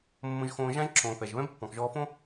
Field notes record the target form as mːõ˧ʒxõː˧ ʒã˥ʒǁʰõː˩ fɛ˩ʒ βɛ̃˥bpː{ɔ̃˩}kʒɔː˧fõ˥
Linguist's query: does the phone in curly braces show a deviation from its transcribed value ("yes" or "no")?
no